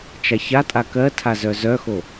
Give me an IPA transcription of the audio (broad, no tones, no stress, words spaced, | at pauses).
t͡ʃaçatʼa kɜtʰa zœzœxo